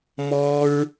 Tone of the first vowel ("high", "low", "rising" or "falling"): high